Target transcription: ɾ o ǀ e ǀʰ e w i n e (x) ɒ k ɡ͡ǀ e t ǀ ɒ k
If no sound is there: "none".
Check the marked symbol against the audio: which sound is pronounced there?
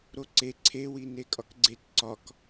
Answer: kʼ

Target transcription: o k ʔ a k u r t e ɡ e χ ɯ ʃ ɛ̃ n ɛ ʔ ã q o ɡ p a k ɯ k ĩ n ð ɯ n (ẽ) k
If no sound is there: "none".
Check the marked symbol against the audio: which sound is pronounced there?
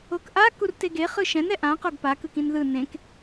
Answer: ẽ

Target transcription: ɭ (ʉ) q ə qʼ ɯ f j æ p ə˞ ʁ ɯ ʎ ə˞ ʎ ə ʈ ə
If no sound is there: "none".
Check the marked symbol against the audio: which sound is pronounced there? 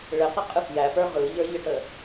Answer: ɘ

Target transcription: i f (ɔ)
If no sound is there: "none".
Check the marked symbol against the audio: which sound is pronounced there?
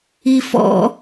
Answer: ɔ̰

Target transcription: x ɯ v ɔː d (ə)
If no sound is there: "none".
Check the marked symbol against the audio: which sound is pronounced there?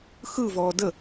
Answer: ə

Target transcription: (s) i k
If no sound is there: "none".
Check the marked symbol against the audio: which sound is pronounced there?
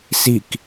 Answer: s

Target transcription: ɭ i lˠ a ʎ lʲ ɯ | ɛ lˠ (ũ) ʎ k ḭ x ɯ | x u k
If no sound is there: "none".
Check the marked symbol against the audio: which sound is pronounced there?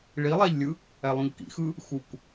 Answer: ũ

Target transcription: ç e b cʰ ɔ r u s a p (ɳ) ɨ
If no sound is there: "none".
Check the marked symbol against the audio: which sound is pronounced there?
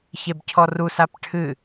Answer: ʈʰ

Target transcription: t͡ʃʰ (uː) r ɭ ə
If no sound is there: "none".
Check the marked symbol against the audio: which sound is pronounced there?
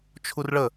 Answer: u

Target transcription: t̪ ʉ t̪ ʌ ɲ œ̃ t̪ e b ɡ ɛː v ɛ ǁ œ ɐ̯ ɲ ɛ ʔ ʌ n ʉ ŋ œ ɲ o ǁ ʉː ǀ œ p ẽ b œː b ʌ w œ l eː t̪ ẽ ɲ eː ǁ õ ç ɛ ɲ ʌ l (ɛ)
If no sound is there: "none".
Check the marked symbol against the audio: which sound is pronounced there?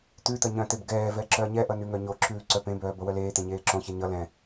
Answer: ɛ̃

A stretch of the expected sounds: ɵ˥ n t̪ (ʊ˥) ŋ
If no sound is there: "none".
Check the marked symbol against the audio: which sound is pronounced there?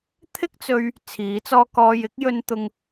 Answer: ʊ˥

